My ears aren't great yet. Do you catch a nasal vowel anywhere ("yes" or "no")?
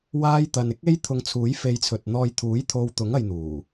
no